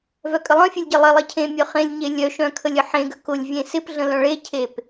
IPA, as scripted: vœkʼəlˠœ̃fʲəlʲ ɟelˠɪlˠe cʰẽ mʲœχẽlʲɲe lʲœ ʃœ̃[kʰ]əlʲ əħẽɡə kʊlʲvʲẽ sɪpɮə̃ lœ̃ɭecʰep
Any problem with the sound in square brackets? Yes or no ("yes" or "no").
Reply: no